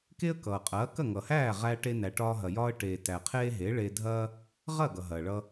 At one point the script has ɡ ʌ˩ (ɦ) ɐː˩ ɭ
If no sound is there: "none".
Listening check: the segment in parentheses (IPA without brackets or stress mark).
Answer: ɦ